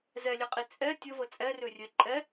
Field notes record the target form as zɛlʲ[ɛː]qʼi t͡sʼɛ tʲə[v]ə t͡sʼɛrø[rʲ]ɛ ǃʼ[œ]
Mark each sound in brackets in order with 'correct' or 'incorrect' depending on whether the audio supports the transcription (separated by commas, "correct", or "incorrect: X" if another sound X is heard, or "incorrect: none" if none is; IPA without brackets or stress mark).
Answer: incorrect: ɛ, correct, correct, incorrect: ɛ